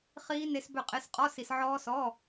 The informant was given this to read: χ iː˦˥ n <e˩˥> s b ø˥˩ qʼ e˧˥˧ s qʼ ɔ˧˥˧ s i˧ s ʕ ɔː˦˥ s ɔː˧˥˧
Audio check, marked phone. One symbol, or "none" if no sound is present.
e˦˥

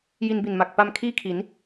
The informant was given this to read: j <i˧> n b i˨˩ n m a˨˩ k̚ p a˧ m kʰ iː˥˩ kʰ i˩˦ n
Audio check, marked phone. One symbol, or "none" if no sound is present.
i˧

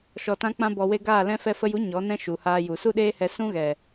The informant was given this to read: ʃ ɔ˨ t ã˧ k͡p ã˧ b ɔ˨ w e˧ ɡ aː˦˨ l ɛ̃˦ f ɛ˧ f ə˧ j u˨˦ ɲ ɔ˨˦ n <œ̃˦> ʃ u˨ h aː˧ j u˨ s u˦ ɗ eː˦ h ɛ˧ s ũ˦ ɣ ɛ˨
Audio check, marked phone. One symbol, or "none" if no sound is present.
ɛ̃˦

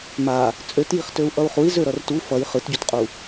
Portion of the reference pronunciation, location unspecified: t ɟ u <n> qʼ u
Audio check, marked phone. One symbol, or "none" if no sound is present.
t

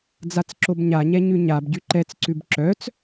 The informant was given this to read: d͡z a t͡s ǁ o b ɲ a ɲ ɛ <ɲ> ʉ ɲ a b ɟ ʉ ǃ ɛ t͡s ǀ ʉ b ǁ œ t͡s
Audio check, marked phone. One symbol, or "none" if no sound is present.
ɲ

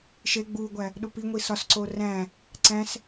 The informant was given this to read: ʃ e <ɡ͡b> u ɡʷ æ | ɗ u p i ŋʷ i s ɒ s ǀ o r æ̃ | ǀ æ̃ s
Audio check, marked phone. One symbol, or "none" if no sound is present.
ɡ͡b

